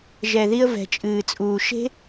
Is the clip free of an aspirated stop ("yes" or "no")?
yes